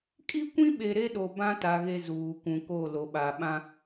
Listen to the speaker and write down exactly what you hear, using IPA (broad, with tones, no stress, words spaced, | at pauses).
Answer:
kʼi˦kʷĩ˦ɓe˨ ɾe˦ɗo˨ bã˦ta˨ ɣe˦zuː˨kʷũ˨ko˦˨ lo˨ɓa˨ɓã˦